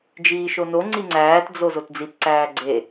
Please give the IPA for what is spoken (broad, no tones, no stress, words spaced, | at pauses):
d͡ʒiːʃonoŋ͡ǀi ŋ͡ǀæːtd͡zo zotd͡zitǀæː ɡ͡ǀe